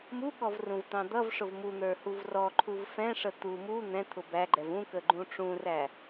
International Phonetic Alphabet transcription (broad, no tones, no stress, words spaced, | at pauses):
muɠɔvrũvt̪ɑ̃ d̪ʌvʂʊv mun̪ə˞huv rɔǃʰuv fɛ̃ʂə t̪u mu n̪ɛ̃t̪ʰʊ bæɡ͡ǃɛv ũkəɡ͡ǃũ ʈ͡ʂũræ